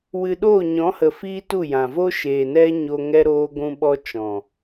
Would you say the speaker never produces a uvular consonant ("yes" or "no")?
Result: yes